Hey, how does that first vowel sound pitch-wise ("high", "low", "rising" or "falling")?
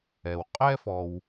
low